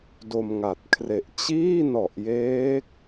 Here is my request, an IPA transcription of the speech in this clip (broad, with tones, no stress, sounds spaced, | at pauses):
d o˧ m ŋ a˨˩ t̚ kʰ r e˨˩ ʔ t͡ɕ iː˥˩ n ɔ˨˩ ʔ j eː˦˥ k̚